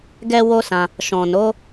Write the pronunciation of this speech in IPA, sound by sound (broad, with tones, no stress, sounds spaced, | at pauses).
ɡ ɛ˦ w o˦ s ã˧ | ʃ ɔ̃˨ n o˨˦